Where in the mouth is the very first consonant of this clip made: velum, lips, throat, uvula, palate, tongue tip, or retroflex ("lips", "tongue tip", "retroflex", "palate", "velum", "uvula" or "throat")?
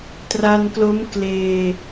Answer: tongue tip